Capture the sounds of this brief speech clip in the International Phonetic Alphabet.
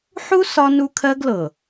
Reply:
ħ u˦ s ɒ˦ n u˦ kʰ ɜ˦ ɡ l ɤ˨

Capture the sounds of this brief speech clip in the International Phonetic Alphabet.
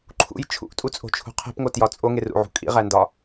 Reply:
ǃʰ ṵ j t͡ʃʰ ṵ ʔ tʼ u t͡sʼ o̤ t͡ʃʰ ṳ qʰ e̤ p ŋ o t j ɒ t͡sʼ o ŋ e r ṵ ʕ ṳ kʼ ḭ ʁ æ n d ɒ

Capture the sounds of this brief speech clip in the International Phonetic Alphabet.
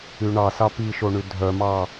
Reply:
y ɳ ɑ s ɑ p i ʃ o ɳ y dʱ œ m ɑ

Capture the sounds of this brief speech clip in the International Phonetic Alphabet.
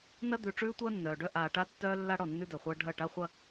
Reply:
n ɐ˦ d̪ ʉ˨ ʈ͡ʂ ʉː˦ tʷ ɐː˦ nː œː˨ ɖ œ˦ ʔ aː˨ ʈ a˦ tː œː˦ lː a˦ ɽ ɔ˦˨ nː ʉ˦ d œ˨ χʷ ɐː˦ ɖʱ ɐ˦˨ ʈ a˦ χʷ ɐ˦

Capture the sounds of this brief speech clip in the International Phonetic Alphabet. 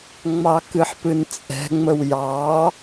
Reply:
ŋ͡m ɑ k ɨ ħ p ɨ n t͡sʼ ɛ̤ ŋ͡m ə w j ɑ

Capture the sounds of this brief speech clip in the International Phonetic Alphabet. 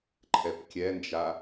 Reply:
ǃʰ ɛ p kʲ ɛ n d͡ʒ a

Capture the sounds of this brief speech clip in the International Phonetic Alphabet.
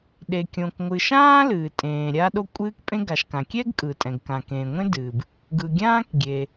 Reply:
ɗ e˩ kʲ õ˩ k ŋʷ ɨː˩ ʃ ãː˥ l ɨː˩ tʼ ẽː˩ ɾʲ a˥ ɗ o˥ kʷʼ ɨː˥ k pʼ ẽ˥ ɡ a˩ ʃ k ã˩ kʲ ɛ˥ ɡ kʼ ɯ˩ tʼ ɛ̃˩ ɡ k ã˩ k ẽː˩ ŋʷ ẽ˥ d ɨː˩ b | ɡ ɯ˩ ɡʲ ãː˥ k ɡʲ e˩

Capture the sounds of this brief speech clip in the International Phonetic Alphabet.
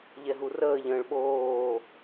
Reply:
ʎ ɛ ɦ u r əː ʎ ə̃ː ɭ ɓ oː

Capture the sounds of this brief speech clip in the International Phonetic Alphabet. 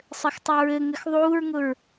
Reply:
sˤ ɘ x tˤ u ɹ ɘ ŋ ɘ x ðˤ uː ɹ ŋ ʊ ɹ

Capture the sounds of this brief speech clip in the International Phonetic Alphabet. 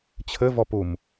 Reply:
t͡ɕʰ ɘ v ɔ p u m

